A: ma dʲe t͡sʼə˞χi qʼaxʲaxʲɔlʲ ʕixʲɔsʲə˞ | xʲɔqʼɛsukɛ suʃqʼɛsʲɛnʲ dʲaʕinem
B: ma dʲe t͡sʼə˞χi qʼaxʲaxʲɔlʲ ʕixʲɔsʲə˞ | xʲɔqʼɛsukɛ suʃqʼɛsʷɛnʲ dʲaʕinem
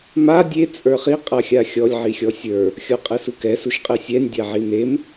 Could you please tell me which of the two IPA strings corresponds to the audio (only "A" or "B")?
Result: A